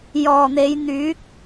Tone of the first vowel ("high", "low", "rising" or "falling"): low